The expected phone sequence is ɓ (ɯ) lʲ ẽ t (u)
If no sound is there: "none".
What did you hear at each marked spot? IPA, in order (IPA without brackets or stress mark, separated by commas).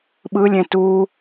ɯ, u